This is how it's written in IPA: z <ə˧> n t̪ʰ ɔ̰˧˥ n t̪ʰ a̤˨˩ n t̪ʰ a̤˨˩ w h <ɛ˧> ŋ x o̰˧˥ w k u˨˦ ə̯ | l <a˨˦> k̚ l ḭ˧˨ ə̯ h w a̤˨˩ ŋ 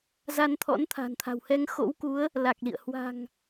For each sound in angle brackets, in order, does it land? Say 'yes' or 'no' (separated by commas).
no, yes, no